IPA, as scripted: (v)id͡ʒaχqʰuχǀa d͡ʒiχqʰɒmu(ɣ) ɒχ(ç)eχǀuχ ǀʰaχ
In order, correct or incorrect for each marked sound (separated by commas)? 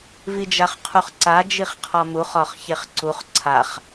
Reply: correct, incorrect, correct